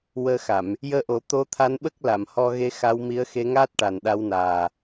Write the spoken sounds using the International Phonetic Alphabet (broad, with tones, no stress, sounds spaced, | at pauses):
w əː˧ x a˨˩˨ m | j əː˧˥ ʔ o˨˩˦ t̪ o˧˥ t̪ʰ a˧˥ n ɓ ə˦˥ k̚ l a˨˩˨ m h ɔ˧ ɣ e˧˥ x a˧˥ w m i˧˥ ə̯ x e˧˥ ŋ aː˦˥ t̚ ʈ a˨˩ n ɗ a˧˥ w n aː˨˩